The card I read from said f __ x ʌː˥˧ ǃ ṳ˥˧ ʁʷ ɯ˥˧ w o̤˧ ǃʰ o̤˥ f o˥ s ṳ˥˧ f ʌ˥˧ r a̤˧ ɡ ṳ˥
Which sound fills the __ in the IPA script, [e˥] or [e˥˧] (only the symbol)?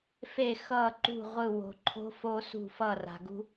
e˥˧